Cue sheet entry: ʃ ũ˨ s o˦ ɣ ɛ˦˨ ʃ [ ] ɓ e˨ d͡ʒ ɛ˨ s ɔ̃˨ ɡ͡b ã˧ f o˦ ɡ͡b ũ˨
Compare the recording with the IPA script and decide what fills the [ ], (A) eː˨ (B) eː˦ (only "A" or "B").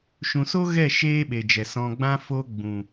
B